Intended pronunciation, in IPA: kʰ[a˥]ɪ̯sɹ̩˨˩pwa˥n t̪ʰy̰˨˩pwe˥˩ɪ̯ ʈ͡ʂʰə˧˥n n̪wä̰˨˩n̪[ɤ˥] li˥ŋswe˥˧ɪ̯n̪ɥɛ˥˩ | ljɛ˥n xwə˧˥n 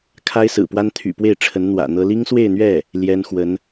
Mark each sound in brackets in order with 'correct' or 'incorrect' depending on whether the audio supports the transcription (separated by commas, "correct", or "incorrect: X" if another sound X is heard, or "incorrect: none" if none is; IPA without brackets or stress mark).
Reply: correct, correct